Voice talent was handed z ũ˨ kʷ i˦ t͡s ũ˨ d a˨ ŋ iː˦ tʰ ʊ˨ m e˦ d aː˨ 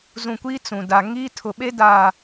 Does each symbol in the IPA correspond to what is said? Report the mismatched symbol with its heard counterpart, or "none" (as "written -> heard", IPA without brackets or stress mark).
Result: m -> ɓ